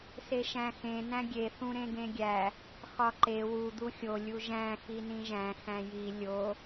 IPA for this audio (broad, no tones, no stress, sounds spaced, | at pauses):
s e ʃ æ̃ x ẽ n æ̃ ɡʲ e θ ũ ɾ ẽ ɡ ẽ ɡʲ æ | x ɒ ǃ e w u d̪ u xʲ o lʲ u ʒ æ̃ x i n ĩ ʒ æ̃ x æ̃ j i lʲ o